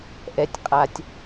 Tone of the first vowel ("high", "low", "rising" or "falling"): low